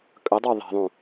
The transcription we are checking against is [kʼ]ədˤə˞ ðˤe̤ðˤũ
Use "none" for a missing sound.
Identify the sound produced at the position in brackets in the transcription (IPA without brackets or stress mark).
kʼ